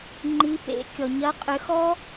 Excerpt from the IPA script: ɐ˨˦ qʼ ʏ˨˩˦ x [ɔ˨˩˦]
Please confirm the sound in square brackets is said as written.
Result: no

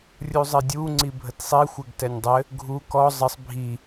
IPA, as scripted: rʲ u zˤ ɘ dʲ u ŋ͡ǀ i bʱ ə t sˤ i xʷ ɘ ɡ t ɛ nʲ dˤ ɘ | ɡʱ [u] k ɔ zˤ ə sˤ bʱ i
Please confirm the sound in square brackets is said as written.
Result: yes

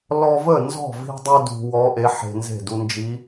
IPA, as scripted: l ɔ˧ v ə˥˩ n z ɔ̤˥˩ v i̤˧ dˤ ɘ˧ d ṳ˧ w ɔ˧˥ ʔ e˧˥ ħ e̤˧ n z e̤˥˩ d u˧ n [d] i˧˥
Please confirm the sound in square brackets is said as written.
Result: no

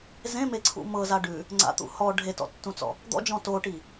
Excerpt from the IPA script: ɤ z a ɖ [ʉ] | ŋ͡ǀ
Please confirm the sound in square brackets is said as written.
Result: yes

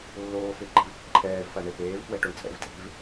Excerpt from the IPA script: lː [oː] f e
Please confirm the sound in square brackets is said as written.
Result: yes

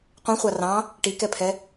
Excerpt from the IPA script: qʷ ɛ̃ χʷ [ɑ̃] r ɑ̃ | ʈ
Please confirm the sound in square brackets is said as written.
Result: no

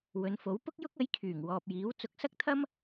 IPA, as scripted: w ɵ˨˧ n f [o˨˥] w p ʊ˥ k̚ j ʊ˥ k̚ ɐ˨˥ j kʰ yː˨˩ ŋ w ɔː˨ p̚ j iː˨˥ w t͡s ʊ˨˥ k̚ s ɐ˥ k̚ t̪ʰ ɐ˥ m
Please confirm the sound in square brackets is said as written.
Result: yes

